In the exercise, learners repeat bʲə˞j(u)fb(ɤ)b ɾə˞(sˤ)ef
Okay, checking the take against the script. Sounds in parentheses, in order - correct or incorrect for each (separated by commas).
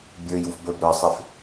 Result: correct, incorrect, correct